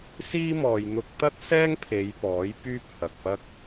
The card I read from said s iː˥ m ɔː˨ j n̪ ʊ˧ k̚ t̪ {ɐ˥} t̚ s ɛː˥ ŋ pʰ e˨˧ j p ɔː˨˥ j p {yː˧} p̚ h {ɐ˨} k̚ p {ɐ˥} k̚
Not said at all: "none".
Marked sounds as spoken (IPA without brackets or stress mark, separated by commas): ɐ˥, yː˥, ɐ˨, ɐ˥